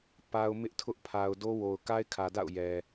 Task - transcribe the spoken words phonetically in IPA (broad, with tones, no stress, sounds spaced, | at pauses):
p a˦ ʊ̯ m ɪ˦ ʔ tʰ ʊ˦ ʔ pʰ a˨ ʊ̯ d o˦ w o˨ ʊ̯ k a˦ ɪ̯ kʰ ä˨ d a̰˦˨ ʊ̯ j ɛ˨